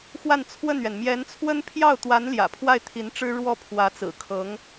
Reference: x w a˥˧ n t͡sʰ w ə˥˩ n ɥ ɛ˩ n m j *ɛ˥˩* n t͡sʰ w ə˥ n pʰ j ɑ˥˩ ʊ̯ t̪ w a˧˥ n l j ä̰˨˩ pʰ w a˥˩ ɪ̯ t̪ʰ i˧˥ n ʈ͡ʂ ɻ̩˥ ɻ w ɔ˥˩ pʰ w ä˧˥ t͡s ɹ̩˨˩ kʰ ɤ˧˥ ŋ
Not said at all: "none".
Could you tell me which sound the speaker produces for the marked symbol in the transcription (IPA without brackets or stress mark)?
ɛ˧˥